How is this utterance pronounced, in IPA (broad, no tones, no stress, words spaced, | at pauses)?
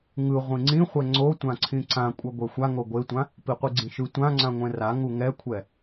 ŋɯ ʁʷĩŋ͡ǀĩχʷɛ ŋ͡ǀotʷãǀʰĩ ǀãkʷʼʌ ɡʷɛxʷaŋo ɡʷetʷã | piqʷiɡ͡ǀĩʃɯ tʷã ŋ͡ǀãŋʷɛ̃ra ŋuŋɛkʷʰɛ